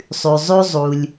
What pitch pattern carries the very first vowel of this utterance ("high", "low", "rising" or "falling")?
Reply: low